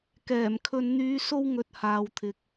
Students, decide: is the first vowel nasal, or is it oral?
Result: oral